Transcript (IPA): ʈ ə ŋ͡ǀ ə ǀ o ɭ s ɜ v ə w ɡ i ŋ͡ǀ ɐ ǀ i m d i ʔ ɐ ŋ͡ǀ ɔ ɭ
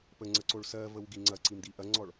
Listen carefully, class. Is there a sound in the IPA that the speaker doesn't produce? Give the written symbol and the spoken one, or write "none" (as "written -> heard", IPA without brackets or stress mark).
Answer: ʈ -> p